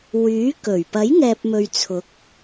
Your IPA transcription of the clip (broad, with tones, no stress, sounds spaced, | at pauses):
w yː˨˥ k ɵ˨˩ ɥ p ɐ˨˥ j ŋ ɛː˨ p̚ m ɵ˨ ɥ t͡sʰ ʊ˨˥ k̚